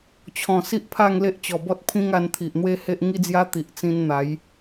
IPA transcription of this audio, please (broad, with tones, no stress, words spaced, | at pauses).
t͡ɕʰɔ̃˨˩ si˦ʔpʰa˥˧ŋ le˦ʔt͡ɕɔ˨˩bɔ˦t̚ pʰĩ˦ŋa˧nt̪ʰi˨ʔ n̪we˦he˦ʔ ŋi˦d͡zja˦t̪i˨ʔ t͡sĩ˧nn̪a˨˦j